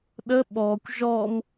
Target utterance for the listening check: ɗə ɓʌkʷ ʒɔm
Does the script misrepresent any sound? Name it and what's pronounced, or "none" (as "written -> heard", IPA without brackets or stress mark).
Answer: ʌ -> ɔ